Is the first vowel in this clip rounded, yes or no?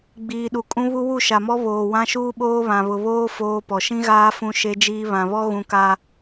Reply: no